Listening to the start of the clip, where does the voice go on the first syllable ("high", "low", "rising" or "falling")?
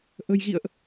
low